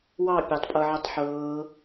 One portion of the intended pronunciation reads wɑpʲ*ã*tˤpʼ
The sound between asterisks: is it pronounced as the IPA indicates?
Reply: no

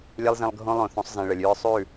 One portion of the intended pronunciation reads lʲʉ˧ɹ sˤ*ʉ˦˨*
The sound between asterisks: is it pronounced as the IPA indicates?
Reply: yes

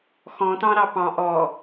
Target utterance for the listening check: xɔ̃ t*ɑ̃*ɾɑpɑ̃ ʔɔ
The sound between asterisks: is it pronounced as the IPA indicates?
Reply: yes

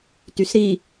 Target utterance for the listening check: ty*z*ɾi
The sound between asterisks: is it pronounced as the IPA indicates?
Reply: no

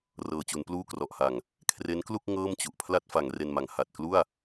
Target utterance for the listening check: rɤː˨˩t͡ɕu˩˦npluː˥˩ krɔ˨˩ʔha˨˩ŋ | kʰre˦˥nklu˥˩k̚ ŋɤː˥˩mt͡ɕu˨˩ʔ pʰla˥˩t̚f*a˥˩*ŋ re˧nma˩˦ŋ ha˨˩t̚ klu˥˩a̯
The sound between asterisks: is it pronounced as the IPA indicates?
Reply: no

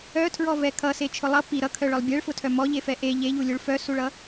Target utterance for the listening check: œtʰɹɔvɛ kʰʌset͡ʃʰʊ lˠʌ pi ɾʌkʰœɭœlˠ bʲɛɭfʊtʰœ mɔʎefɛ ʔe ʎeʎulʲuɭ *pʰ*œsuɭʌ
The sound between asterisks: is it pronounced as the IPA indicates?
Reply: no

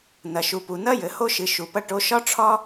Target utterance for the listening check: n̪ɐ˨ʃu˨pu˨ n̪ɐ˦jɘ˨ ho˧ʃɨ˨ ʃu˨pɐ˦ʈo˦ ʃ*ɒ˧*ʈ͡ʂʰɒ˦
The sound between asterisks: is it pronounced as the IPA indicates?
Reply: no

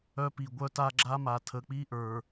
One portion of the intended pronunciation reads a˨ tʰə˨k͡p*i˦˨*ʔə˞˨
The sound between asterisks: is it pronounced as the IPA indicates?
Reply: no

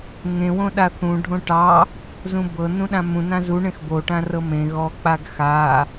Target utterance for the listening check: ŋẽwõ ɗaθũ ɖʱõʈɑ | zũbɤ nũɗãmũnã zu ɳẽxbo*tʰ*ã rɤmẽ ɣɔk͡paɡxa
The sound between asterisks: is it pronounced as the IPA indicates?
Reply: no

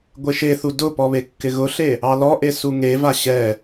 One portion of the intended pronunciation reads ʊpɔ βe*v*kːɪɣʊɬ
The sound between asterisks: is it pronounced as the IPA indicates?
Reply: no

